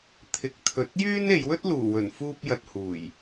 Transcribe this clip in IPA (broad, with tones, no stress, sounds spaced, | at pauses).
t̪ʰ ɪ˨˥ k̚ t̪ʰ ɵ˧ t̚ j yː˥ n e˨˧ j w ɵ˥ t̚ l uː˨˩ w ɵ˨˩ n f uː˧ p̚ j ɐ˨ t̚ h uː˨˩ j